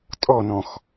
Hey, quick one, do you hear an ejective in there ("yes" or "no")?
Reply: yes